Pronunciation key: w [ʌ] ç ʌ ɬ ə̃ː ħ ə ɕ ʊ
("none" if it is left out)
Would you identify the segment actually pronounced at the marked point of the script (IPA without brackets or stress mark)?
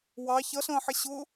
ɑ